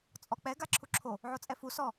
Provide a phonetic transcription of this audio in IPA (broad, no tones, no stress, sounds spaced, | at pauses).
t͡sʼ ɔ k͡p ɛ ɡ a ǁʰ u ǁʰ o | ʕ o t͡sʼ ɛ f u s ɔ